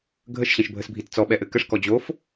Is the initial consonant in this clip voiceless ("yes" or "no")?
no